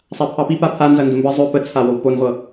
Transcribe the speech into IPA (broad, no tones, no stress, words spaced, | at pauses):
sˤapʰɑpi papʰanzɐ ndəmbə zˤɵ pət͡sʰawow ponʁʷɤ